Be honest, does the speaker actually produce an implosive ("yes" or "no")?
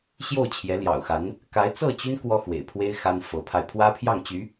no